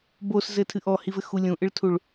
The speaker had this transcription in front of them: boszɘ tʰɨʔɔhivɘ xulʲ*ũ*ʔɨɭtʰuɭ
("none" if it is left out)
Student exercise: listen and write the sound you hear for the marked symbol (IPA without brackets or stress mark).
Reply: ũ